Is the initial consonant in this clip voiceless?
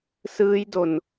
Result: yes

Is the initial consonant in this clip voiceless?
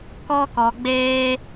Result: yes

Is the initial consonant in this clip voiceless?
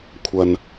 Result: yes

